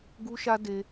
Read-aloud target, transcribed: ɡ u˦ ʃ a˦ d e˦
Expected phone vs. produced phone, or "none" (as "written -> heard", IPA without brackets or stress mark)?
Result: none